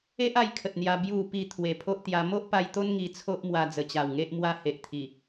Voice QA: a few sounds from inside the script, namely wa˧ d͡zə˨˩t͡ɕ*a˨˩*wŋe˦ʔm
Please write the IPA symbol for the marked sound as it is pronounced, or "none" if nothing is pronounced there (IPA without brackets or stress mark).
a˨˩